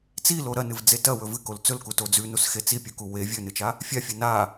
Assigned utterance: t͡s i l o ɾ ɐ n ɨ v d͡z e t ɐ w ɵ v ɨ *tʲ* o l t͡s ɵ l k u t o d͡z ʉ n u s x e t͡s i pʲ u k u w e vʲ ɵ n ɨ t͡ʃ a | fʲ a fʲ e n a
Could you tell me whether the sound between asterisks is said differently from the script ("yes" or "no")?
yes